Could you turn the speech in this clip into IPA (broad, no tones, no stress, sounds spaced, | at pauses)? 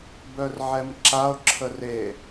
b œ r ʕ ɛ m ǁ a o̯ ǁʰ ə r e